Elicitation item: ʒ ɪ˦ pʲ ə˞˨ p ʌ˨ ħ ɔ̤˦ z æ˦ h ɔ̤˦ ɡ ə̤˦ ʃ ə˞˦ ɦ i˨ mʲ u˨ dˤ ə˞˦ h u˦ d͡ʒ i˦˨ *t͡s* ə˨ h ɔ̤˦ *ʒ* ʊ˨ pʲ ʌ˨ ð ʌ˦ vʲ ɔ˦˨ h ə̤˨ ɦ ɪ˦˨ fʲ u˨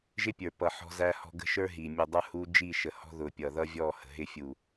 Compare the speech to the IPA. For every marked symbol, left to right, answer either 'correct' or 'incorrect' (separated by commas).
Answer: incorrect, incorrect